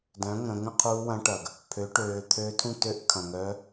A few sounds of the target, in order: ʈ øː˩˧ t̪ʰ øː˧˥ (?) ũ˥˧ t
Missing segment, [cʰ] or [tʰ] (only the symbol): tʰ